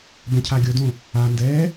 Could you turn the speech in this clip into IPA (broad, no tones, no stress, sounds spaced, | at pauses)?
b ɛ̃ cʰ a ɡʲ o d õ | a n d ɛː